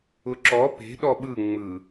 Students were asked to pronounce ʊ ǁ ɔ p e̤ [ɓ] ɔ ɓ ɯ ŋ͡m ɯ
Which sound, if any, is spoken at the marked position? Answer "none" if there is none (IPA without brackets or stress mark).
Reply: ɗ